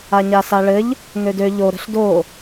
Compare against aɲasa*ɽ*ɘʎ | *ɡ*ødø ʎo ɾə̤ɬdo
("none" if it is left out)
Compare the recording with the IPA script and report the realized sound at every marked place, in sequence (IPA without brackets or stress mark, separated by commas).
ɭ, ŋ